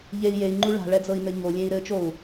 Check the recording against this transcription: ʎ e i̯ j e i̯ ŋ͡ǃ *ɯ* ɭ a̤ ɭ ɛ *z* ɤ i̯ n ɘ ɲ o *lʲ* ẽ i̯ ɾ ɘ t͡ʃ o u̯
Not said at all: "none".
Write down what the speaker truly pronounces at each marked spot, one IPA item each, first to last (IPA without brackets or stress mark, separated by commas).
u, d͡z, lʲ